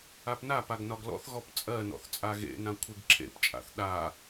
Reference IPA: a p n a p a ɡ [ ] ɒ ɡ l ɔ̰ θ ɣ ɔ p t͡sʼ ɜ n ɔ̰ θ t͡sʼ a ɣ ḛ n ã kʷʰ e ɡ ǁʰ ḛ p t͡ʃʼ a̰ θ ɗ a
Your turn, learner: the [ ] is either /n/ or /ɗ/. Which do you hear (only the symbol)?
n